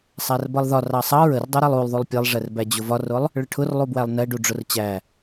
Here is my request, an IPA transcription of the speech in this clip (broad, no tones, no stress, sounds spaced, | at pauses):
sˤ æ r b ʌ lˠ ð ɒ r ɑ sˤ ɑ ɹ ə r dˤ u ɾ ɛ lˠ u lˠ ðˤ u lˠ pʲ ɛ lˠ ʐ ɛ r b æ d͡ʑ ʊ v ɒ r ʊ lˠ | ɭ ə ʈʰ ʊ r lˠ u b w æ lˠ n ɛ ɖ u ɖ͡ʐ ʊ r t͡ɕ æ